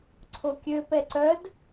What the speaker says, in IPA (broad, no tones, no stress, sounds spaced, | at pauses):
ǀʰ o kʲ ø p ɛ ǀ œ d